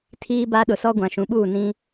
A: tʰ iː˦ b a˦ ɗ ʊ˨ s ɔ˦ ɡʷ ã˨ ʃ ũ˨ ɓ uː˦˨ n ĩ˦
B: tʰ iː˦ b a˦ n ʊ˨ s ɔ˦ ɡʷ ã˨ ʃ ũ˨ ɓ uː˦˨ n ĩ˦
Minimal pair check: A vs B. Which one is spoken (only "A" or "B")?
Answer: A